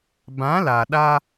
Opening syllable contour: rising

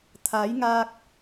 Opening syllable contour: rising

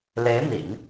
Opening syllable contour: rising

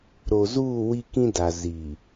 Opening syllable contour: low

